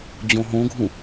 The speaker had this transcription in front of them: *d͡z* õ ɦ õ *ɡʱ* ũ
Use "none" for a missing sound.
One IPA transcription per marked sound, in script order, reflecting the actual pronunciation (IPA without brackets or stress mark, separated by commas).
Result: d͡ʑ, ɡʱ